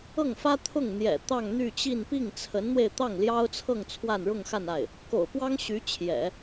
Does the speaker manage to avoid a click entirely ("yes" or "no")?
yes